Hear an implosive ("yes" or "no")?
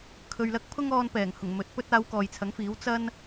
no